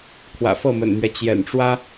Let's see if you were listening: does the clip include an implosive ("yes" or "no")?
no